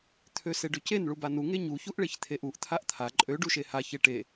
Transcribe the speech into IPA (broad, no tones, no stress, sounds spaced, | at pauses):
t̪ʰ ø s e ɖ ø c e n ɭ u b a n u ŋ e ɲ u ç u ʔ ɭ e ç t̪ʰ e ʔ u ʔ t̪ʰ a ʔ t̪ʰ a ǃʼ ø ɖ u ʃ e h a ç e ʈ e